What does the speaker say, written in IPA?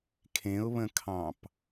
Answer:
kʰẽʊ̯βə̃kʰɑ̃p

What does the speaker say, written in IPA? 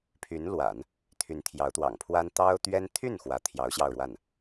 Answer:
pʰy˧˥nlwa̰˨˩˦n | t̪ʰy˧˥nt̪ʰjɑ˧˥ʊ̯t̪wɑ̰˨˩ŋpʰwa˥n t̪ɑ˥ʊ̯t̪ɥɛ˥n t̪ʰy˥˩n xwä˧˥t̪ʰjɑ˧˥ʊ̯ ɕjɑ˥˧ʊ̯ɻwa˥˩n

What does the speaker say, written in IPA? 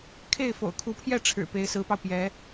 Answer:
kʰe˥˩ɪ̯ fo̰˨˩ʊ̯kʰu˧˥pʰjɛ˥˩ ʈ͡ʂʰɻ̩˨˩pe˧˥ɪ̯sɹ̩˧˥pɑ˧ʊ̯ pjɛ˧˥

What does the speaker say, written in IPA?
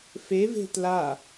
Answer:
feve̤ tla

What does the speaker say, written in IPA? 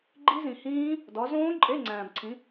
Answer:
ɡ͡ǃi˦˥zĩ˨hĩː˦˥ | dɒ˨˦zõː˦˥ ǃʼe˧˥˧ŋ͡ǀæ̃ː˨bǀʰĩ˨˦

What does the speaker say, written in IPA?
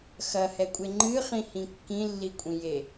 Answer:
xɐhɛkʷʼe ŋ͡ǃɨχĩhĩ kːĩlːikʷʼĩje

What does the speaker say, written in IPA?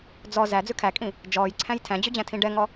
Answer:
d͡zɔ zæd͡zʉ kʰækʼĩ | d͡ʒɔːjǀʰæ̃j tʰæ̃d͡ʑʉd͡ʑæ̃tʰĩ ɖɛŋɔ

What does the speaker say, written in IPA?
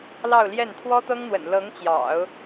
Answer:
lɑ˥˧ʊ̯ljɛ˥˩n t̪ʰwɔ˥t̪ɤ˥ŋn̪wə̰˨˩n lɤ˧˥ŋt͡ɕjɑ̰˨˩˦ʊ̯

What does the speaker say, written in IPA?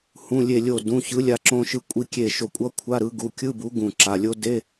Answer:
hũ˩˧˩ lʲe˧˩lʲo˧˩ dũ˩˧˩ çɯ˨˥lʲa˧ ǁõ˧ʃɯ˧kʷʼi˧kʲe˧˩ ʃo˧˩kʷʼʌ˧˥˧ kʷʰa˧˥˧ɾɯ˨˥ ɡu˩˧˩kʲɯ˧˥˧bu˨˥ ɡũ˧˩ǁa˩˧˩lʲo˥ de˧˥˧

